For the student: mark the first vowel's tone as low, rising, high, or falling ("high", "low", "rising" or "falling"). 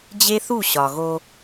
high